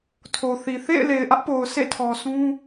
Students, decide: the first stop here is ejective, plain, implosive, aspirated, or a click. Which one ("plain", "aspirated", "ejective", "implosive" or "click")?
aspirated